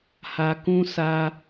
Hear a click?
no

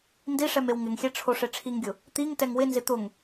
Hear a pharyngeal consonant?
no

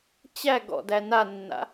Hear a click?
no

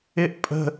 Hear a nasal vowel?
no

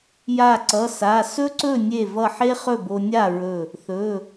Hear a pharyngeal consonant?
yes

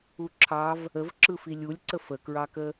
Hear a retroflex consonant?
no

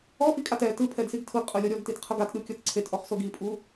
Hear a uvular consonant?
yes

